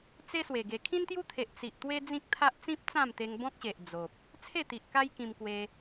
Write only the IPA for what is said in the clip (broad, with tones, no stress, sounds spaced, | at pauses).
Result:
t͡s e˦ s w e˨˩ ɡ e˨˩ kʰ ĩ˦ n t̪ j u˦ t̪ʰ e˨ ʔ t͡s i˨ ʔ t̪ w e˦ d͡z ĩ˦ k̚ t̪ʰ a˦ ʔ t͡s ĩ˦ p̚ t͡s ã˥˧ m t̪ e˧ ŋ b ɔ̃˦ k̚ ɕ e˨ ʔ d͡z o˨ p̚ | t͡sʰ e˥˧ t̪ i˨ ʔ k a˦ j k ĩ˧ m k w e˧